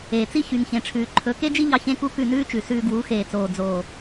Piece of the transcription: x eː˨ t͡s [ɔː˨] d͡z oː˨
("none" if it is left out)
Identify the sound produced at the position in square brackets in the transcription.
oː˨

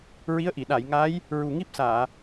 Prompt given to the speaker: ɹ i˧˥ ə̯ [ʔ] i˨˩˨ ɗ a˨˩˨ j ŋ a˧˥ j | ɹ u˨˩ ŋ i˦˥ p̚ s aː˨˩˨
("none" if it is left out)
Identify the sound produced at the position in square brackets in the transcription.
ʔ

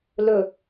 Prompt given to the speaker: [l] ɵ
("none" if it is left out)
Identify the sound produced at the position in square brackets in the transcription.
l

